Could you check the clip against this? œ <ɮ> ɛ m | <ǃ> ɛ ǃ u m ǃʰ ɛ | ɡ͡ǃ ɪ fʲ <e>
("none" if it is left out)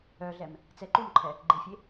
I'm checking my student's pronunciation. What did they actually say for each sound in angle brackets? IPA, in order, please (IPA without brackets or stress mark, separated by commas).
ɮ, t͡s, e